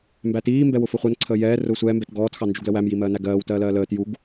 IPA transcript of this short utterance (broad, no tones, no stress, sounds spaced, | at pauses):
m b æ t iː m b ɛ w ʊ f ʊ χʷ ɜ n ǀʰ əː j ɛː r ʊː sʷ ɛː m b ɛ t ɡ ɔː t x ɑ n d͡ʒ u ɡ l ə w æ m j i m ɜː n æ ɡ ɜː w t ɜː l ɜː l əː t j u ɡ